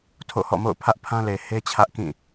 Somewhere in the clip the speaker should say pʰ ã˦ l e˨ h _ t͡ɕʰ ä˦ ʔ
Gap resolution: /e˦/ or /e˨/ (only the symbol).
e˦